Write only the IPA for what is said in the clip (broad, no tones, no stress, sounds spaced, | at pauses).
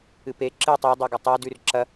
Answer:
ɨ p e ǁ ɨ tˤ u dˤ e ɡ ɐ tˤ a d ʉ r ǁ ɐ